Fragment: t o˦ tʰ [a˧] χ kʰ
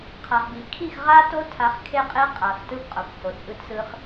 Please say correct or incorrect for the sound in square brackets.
correct